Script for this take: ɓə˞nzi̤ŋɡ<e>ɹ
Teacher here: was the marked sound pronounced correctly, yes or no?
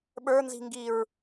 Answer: no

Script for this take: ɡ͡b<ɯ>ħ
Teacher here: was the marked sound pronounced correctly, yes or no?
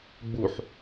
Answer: no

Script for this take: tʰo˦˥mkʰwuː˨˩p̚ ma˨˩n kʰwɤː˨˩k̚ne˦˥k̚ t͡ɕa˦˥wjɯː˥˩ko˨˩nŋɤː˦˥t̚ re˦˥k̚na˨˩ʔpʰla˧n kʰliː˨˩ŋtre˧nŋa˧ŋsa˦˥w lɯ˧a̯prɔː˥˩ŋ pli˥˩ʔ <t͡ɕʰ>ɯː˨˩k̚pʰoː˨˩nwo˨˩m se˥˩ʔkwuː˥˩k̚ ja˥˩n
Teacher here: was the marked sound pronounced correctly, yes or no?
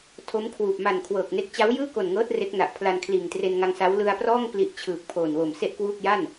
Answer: yes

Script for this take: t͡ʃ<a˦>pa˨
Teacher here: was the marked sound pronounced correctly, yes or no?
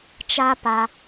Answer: yes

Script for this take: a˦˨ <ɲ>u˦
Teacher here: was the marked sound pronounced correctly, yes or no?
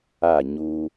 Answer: yes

